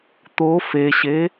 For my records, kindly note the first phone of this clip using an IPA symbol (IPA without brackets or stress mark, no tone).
t̪